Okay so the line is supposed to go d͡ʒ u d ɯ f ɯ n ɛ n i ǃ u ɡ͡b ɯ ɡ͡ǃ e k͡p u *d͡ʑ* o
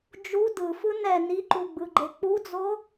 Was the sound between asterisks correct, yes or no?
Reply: no